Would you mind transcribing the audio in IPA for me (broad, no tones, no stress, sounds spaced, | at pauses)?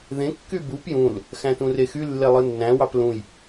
ð ẽ kː y b u p j ũ l | x æ̃ t ũ r e x y lː e lˠ ɯ nː æ̃ w ɑ p l ũ j